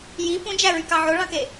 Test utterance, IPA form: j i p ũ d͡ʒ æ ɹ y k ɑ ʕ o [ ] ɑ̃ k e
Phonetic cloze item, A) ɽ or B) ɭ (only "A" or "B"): B